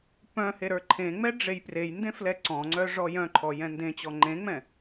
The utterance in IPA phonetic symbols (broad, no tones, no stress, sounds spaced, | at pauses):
p œ̃ h e ɾ ə˞ ǃʰ ẽ ŋ͡m ɛ ɖ͡ʐ e j p r e j n d ẽ f l ɛ ǀ ɔ̃ ŋ͡ǀ œ ʐ ɔ j œ̃ ǃʰ ɔ j ɛ̃ n d ẽ t͡ɕ ɔ ŋ͡ǃ ẽ ŋ͡m ɛ̃